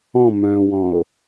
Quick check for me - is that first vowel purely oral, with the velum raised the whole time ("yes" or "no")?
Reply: no